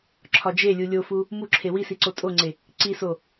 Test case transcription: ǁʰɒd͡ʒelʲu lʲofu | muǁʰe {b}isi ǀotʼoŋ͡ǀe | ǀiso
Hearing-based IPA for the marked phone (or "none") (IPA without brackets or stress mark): w